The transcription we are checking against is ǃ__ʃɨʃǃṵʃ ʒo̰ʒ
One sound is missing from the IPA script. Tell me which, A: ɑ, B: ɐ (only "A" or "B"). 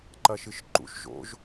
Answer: B